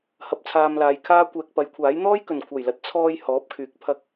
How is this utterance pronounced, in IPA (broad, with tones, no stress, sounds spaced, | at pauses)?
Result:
h ɐ˨ p̚ t͡sʰ aː˧ m l aː˨˧ j kʰ aː˥ kʷ ɛː˨ k̚ p ɐ˨˥ j kʷʰ aː˨˥ j n̪ ɔː˥ j k ɵ˨˩ n kʷʰ ɐ˨˩ j l ɐ˨˥ t̚ t͡sʰ ɔː˧ j h ɔː˨˥ p̚ kʰ yː˨˥ k̚ pʰ ɐ˧ k̚